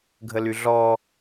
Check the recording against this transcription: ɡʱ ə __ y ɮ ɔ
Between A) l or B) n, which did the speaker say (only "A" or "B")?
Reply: A